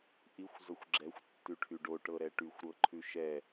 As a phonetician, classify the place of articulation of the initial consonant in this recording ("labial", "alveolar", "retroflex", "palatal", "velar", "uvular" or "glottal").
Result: glottal